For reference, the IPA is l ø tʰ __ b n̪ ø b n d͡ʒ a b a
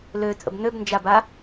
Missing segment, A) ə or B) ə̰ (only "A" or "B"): B